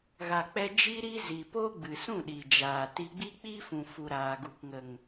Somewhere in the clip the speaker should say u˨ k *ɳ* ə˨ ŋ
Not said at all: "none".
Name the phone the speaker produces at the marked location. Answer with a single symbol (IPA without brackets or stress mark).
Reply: ŋ